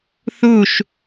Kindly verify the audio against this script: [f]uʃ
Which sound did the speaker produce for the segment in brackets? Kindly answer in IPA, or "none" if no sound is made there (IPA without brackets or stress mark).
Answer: θ